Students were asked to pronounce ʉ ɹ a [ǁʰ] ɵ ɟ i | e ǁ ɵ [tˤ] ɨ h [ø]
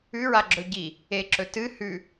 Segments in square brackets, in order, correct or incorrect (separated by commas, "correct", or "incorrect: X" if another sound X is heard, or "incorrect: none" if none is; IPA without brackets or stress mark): incorrect: ɡ͡ǁ, incorrect: t, incorrect: ʉ